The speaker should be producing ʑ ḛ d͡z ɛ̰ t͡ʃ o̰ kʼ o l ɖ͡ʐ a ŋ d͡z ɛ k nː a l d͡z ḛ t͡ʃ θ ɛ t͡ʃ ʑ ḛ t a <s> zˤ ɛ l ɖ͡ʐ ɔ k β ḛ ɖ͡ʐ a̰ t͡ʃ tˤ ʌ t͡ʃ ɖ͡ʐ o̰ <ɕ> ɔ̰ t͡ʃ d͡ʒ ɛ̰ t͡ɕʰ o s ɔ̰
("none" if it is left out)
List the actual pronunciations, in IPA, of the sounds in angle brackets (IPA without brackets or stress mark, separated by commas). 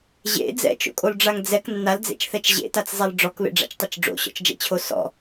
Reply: t͡s, ɕ